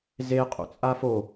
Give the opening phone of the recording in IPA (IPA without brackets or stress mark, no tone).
z